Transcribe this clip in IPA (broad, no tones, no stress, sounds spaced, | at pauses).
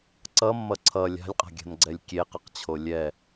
ǀ ʌ mː ʌ ǀʰ ʌ lʲ a̤ lʲ qʼ a̤ ɡʲ a̤ n ɡ͡ǀ ɛ lʲ kʲ e q ʌ q t͡ɕʰ o lʲ ɛ